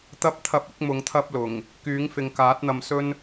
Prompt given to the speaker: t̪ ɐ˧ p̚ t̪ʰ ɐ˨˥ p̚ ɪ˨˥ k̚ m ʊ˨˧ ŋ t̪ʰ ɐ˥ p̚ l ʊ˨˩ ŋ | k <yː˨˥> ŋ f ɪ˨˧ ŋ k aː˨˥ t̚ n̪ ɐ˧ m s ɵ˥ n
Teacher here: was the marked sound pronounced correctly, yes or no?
yes